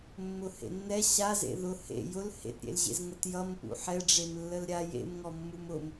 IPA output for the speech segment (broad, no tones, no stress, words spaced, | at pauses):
mːʊhḛnːɛ ɕazḛ ðʊ hḛ jʊl hḛtɾʲḛlʑḛz ŋətjʌm pṵħɛɖ͡ʐem lːəlɾʲa jḛmŋɔ mːumʊm